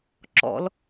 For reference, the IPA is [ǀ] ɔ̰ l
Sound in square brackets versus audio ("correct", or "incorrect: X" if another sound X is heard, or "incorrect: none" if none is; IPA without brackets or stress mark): incorrect: ǁ